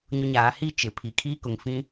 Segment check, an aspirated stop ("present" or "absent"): present